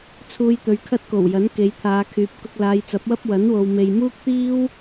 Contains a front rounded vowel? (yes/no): yes